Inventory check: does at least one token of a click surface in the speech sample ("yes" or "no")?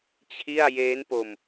no